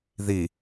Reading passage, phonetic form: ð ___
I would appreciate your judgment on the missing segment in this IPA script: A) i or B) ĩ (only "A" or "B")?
A